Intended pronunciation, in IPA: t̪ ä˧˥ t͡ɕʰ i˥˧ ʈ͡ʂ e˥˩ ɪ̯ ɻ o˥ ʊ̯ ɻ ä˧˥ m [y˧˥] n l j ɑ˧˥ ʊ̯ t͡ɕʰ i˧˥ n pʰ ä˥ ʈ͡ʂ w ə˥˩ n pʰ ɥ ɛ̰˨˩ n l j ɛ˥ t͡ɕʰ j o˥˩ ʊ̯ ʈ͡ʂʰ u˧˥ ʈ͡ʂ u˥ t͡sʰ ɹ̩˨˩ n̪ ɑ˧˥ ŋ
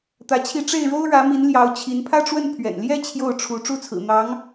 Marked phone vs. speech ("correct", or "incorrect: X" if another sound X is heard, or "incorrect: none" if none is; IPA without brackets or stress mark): incorrect: i˧˥